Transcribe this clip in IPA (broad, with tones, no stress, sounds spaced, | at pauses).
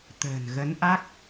t̪ ə̤ː˨˩ n ɣ ə˨˦ n ʔ a˦˥ k̚